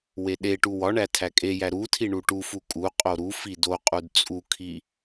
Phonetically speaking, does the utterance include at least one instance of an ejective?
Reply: yes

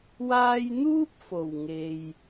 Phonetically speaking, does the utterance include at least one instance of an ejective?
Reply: no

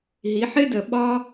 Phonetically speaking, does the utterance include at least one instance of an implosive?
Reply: yes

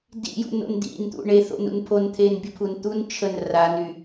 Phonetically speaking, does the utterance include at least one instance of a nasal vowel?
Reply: no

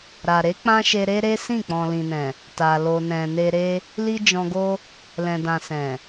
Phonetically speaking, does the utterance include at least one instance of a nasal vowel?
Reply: yes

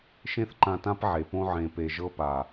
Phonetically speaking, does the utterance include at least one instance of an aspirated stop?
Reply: no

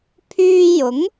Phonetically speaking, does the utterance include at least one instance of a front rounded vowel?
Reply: yes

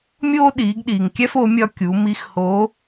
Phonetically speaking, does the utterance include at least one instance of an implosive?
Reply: yes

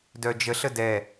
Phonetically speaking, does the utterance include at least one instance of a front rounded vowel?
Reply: yes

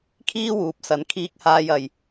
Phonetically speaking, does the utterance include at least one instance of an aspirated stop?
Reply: yes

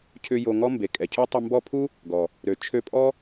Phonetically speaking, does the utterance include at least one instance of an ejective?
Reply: yes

